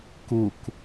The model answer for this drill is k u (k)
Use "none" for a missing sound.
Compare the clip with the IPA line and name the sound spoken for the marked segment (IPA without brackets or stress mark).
k